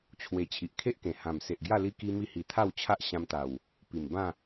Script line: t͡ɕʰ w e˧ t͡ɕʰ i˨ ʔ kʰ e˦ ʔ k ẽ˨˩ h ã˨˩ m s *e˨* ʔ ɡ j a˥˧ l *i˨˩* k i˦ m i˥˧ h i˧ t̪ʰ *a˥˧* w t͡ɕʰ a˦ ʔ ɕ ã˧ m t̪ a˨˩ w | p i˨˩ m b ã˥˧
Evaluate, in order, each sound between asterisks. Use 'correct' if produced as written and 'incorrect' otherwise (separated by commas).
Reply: correct, incorrect, correct